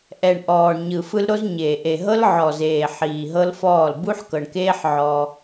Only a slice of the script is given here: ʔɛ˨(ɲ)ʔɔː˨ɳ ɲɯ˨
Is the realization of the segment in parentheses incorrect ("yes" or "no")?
yes